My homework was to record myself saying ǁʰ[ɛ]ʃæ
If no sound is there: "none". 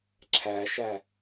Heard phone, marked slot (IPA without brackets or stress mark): æ